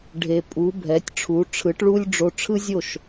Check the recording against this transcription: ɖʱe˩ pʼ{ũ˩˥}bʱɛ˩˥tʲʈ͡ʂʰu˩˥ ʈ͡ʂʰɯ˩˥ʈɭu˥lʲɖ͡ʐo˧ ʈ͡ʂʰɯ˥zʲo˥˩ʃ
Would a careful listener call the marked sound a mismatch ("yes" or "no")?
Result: yes